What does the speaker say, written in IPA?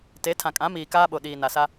t e˨˦ tʰ ã˨ kʼ ã˨˦ m iː˨ k aː˦ ɓ o˨ ɗ iː˨ n a˨ s a˦

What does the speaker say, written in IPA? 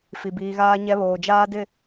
f i˨ b iː˨ ɣ aː˦ ɲ ɛ˦ β oː˨ d͡ʒ aː˦ d ɪ˦˨

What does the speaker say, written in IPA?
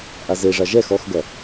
ʔ a z e ʐ a ʒ ɛ x ɔ x ɡ ɐ

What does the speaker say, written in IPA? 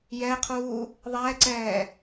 j ɛ qʰ uː | ðˤ ɛː ǀ ɛː

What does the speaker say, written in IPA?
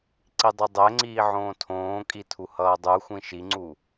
ǀ i dˤ ɯ dˤ ɛ ŋ͡ǀ iː ʕ õː tʰ õː kʼ i tʰ u h ʌː dˤ u xʷ ĩ ʃ i ŋ͡ǀ u

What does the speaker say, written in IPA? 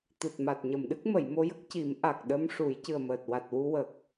t̪ ɨ˨˩ t̚ m a˨˩ t̚ ɲ ə˨˩˨ m ɗ ɨ˦˥ k̚ m ə˨˩˨ j m o˧ j ə˦˥ k̚ c i˨˩˦ m ʔ a˨˩ k̚ ɗ ə˧ m ʂ u˨˩˦ j c ɨ˨˩ ə̯ m əː˨˩ t̚ w a˨˩ t̚ w u˧ w ə˨˩ k̚

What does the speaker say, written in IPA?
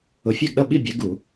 ʊ˨˥ fʲ æ˥˨ ɡ ɗ ʌ˥˨ ɓ i˥˨ bʲ æ˨˥ ɡ u˧˩˧

